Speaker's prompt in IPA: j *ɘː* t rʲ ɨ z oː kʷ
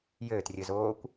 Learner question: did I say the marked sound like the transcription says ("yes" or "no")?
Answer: yes